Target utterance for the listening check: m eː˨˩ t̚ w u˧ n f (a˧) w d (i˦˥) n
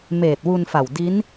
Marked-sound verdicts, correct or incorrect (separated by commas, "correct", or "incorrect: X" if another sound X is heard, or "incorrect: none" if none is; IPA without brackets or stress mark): incorrect: a˨˩, correct